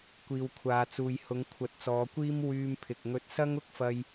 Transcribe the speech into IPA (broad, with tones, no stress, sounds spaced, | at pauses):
kʷ iː˨ w kʷʰ aː˨ t͡s uː˨ j h ʊ˨˧ ŋ kʷʰ ɐ˨˥ t̚ t͡s ɔː˨˧ kʷ iː˥ m w yː˧ m pʰ ɪ˨ k̚ ŋ ɵ˧ t̚ s ɐ˥ ŋ ʊ˥ k̚ f ɐ˧ j